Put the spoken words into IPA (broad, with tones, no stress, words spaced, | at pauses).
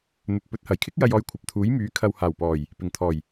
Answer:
n̪ɵ˨t̚ pɵ˨˥t̚hɐ˨˩jkʰɪ˥k̚ jɐ˧jɔː˧jkʷʰɐ˨p̚t̪ʰuː˨˥j myː˨˥ kʰɐ˨whaː˨˩wpɔː˨˩j | pɪ˨˩ŋ t̪ʰɔː˨˩j